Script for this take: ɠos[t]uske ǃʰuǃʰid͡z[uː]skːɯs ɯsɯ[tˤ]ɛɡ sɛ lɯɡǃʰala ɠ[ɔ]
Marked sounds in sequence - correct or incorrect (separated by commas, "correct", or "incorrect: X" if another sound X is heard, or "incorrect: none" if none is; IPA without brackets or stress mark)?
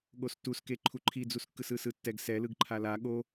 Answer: correct, incorrect: u, incorrect: tː, incorrect: o